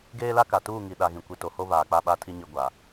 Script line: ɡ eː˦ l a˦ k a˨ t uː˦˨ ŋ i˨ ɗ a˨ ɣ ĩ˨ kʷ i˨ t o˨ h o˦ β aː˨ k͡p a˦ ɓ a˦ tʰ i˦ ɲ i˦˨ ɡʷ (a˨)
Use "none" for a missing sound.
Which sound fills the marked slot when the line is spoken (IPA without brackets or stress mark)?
a˨